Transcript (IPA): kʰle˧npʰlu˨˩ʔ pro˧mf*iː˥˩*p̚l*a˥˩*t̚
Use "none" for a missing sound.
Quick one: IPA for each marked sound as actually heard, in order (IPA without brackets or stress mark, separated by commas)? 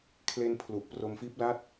iː˦˥, a˥˩